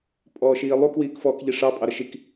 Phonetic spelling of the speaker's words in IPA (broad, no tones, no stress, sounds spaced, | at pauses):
pʼ ɔː ʃ iː lˠ u k w iː k f ɔː k ʎ i ʂ ɑ pʼ ɑ ɾ ə ʃ i k